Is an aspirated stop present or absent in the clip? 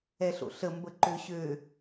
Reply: absent